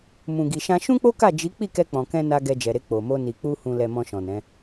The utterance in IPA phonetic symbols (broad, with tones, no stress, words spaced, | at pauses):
mũ˨ɡi˨ʃã˧ ʃũ˦k͡po˦ka˦˨ d͡ʒi˨˦ k͡pi˦˨kɛ˧ k͡pɔ̃˨kɛ̃˧na˧ ɡɛ˧d͡ʒɛ˨ɾe˧ k͡po˨mo˧ ni˨k͡pu˧ hũ˨lɛ˨ mɔ̃˧ʃɔ̃˨nɛ̃˨˦